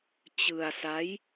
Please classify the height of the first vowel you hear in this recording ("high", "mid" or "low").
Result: high